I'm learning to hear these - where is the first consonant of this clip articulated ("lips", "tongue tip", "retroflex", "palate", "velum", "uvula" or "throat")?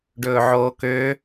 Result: retroflex